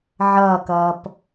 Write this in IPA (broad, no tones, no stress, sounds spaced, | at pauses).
ʕ ʌː k ʌː p